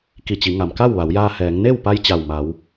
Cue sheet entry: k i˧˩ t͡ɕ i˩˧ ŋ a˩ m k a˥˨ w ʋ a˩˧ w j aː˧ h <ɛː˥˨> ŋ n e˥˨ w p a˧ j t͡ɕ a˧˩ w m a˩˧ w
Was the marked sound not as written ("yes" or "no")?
yes